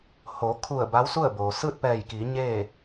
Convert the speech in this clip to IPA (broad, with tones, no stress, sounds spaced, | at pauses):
h o˩˧ kʰ u˧˩ ə̯ b a˧˥ w s u˥˨ ə̯ b oː˩ s ɯː˥˨ t̚ p ɛː˧˩ j k iː˩˧ ɲ eː˥˨